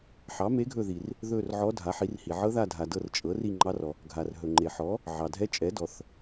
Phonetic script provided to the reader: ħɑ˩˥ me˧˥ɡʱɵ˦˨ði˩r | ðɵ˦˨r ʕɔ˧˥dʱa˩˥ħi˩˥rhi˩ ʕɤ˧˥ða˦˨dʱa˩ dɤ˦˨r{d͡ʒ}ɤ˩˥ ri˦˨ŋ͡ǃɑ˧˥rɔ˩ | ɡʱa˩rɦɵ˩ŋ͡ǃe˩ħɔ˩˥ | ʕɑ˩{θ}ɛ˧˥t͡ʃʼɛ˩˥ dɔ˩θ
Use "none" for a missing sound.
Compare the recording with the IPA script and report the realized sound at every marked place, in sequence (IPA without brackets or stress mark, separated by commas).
t͡ʃʼ, dʱ